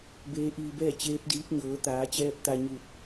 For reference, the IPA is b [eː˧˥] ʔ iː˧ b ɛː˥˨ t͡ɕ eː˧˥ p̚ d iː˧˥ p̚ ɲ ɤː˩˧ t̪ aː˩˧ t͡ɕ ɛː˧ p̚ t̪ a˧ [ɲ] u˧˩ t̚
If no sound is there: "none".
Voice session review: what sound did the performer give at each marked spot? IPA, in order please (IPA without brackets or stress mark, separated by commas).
eː˧˥, ɲ